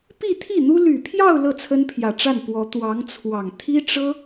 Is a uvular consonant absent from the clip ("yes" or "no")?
yes